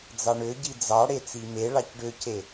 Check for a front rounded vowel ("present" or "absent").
present